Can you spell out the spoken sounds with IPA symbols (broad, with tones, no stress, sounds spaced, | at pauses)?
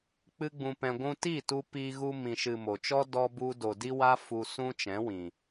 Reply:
k͡p ɨ˦ ɡ͡b ũ˧ p ɛ̃˧ ɡʷ ũ˧ t i˦˨ t u˧ p i˧ ɣ u˧ m ĩ˨ ʃ ɨ˨ m o˨ t͡ʃ ɔ˦ d ɔ˦ b u˦ d o˨ d i˦ w a˦ f u˧ s ũ˦ t͡ʃ ɛ̃˨˦ w ĩ˨